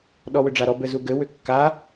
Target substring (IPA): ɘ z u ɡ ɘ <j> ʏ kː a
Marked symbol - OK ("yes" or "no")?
no